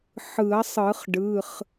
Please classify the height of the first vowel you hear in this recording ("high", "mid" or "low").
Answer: high